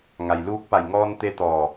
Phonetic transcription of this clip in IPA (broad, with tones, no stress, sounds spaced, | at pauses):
ŋ a˩ j l uː˧˥ k̚ p a˧˩ j ŋ ɔː˧ n t̪ e˧ t̪ ɔː˧˩